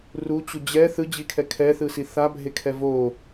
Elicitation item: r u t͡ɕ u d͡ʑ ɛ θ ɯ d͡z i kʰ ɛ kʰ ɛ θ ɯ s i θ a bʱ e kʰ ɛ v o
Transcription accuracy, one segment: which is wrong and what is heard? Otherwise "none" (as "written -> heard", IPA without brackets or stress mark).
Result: d͡z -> d͡ʑ